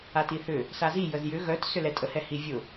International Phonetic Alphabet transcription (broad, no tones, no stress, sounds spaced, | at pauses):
a t i θ ʏ | s a z i j ə z j ʏ ɣ œ t s ʏ l ɛ tʼ ə h ɛ h i vʲ ʊ